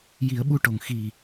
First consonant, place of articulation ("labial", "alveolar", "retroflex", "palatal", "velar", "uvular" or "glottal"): palatal